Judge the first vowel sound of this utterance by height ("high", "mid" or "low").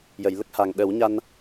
mid